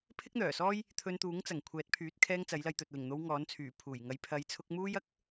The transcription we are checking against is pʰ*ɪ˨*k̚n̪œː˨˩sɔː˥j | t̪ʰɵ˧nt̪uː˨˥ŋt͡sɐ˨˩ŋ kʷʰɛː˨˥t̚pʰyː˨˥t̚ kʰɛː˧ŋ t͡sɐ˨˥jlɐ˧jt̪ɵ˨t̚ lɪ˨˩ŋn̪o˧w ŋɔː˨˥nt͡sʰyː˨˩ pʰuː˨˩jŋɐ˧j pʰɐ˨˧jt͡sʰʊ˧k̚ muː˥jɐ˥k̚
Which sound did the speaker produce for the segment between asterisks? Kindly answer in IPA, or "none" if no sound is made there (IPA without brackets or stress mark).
ɪ˥